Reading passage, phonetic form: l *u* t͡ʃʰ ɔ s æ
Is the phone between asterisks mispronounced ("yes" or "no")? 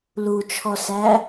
no